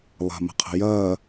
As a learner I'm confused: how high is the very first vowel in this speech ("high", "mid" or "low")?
low